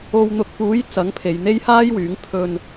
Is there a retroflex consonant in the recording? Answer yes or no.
no